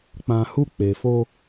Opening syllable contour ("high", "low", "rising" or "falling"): low